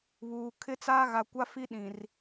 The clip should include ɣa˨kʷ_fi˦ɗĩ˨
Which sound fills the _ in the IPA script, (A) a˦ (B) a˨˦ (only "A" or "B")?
A